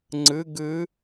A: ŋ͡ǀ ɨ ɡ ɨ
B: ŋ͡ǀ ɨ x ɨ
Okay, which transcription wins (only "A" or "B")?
A